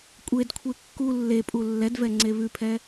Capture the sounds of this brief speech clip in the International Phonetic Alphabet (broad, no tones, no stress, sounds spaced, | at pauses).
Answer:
kʷʼ e d kʷʰ e kː u lː e pʼ u lː ɛ d v ɛ ŋ͡ǀ e β ʉ pʰ ɛ